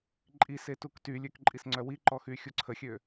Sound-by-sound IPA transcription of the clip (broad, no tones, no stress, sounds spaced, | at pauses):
ǃʼ i s e t u k t y lʲ ø k ǃʼ i s ŋ͡ǀ œ w i ǃ ɔ x y xʲ u ǀʰ ə xʲ ø